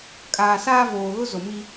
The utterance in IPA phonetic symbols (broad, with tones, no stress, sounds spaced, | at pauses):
kʼ aː˨ s aː˦ v oː˨ ɣ ʊ˦ z o˨ m i˦